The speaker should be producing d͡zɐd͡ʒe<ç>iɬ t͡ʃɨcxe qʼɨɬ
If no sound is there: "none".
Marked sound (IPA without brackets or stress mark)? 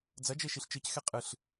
ʃ